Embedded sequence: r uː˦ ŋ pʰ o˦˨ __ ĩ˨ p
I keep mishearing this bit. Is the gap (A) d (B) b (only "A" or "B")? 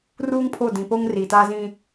A